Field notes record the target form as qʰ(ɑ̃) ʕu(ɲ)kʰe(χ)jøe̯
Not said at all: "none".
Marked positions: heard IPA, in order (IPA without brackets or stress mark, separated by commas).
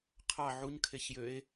ɑ, ɲ, ç